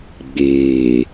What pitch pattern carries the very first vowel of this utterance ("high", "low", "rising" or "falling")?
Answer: low